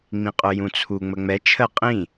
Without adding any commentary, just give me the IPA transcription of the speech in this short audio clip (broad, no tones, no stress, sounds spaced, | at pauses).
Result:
ŋ͡m ĩ qʼ ʊ j ũ t͡sʰ u ŋ͡m ə ŋ͡m ɛ t͡ʃʰ ə qʼ ĩ